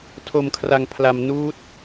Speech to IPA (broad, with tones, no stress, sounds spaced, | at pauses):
tʰ o˧ m kʰ r a˧ ŋ pʰ l a˧ m n uː˦˥ t̚